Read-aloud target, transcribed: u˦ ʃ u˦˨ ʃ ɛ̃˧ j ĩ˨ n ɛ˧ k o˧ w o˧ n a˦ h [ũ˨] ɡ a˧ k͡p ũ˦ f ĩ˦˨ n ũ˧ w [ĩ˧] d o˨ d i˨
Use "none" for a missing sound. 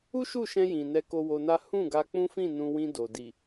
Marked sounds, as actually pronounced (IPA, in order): ũ˦˨, ĩ˧

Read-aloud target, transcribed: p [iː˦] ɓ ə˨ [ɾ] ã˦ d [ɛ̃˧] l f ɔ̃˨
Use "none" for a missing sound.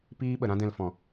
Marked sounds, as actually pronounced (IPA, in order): iː˦, ɾ, ɛ̃˧

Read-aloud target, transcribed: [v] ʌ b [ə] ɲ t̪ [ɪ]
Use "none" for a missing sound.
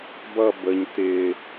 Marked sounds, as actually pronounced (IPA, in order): b, ə, ɪ

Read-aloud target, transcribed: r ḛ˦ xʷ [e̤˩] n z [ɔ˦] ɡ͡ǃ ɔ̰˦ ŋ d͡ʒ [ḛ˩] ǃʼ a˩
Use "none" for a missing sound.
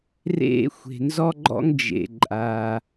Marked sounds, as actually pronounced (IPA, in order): e̤˩, ɔ˦, ḛ˩

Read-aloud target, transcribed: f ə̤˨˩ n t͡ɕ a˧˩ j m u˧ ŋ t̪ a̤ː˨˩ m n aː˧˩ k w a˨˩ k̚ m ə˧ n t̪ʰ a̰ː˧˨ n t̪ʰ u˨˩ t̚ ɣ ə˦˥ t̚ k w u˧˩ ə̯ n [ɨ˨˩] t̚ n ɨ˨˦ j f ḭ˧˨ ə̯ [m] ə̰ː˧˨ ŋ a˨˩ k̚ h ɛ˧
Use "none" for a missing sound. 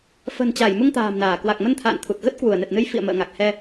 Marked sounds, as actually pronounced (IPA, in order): ɛ˨˩, m

